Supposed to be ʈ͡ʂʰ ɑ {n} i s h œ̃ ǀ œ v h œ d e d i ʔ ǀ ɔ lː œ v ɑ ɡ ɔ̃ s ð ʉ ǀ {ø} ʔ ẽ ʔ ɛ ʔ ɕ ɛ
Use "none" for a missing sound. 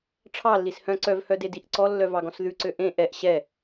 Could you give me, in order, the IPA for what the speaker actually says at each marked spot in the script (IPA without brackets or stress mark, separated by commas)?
lː, ø